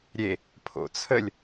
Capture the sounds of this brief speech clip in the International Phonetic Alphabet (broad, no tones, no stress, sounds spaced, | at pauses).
ɾʲ e | pʰ o̰ t͡sʰ ə lʲ